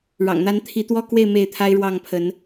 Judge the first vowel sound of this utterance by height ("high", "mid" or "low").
low